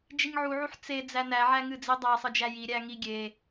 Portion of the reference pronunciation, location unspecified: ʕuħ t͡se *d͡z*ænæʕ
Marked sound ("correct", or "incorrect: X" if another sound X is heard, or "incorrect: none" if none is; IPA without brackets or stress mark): correct